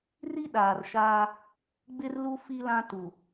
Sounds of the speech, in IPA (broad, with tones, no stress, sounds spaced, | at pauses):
r i˦ ɗ aː˨ r ʃ aː˦ | ɡ͡b ɪ˦ r l u˦ f i˦ l ã˦ t u˨